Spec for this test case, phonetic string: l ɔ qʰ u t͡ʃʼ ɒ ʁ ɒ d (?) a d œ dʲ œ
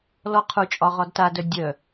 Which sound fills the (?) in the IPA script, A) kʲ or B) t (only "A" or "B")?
B